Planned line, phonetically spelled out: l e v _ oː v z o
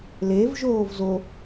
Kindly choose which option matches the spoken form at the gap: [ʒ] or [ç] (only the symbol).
ʒ